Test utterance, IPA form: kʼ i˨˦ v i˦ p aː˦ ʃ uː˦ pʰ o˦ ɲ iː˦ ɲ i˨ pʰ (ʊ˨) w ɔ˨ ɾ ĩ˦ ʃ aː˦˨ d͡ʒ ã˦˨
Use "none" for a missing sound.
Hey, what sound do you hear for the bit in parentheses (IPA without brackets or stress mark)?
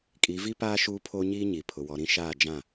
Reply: ʊ˨